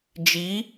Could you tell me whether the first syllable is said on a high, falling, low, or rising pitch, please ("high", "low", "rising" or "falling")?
rising